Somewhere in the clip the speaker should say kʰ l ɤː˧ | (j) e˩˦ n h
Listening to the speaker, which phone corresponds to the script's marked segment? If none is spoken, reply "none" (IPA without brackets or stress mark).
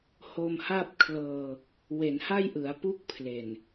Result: w